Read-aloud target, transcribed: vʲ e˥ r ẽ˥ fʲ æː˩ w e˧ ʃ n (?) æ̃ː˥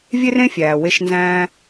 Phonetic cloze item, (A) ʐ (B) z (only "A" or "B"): B